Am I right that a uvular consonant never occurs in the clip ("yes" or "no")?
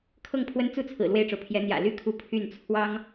yes